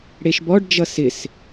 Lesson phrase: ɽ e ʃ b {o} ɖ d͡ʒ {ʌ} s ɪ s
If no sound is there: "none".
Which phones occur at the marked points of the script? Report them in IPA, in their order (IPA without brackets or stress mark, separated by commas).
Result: ɔ, ʌ